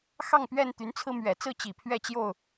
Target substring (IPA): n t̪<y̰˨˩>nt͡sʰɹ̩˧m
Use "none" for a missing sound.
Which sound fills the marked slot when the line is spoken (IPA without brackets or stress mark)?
y˨˦